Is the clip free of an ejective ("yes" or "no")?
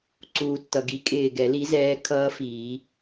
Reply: no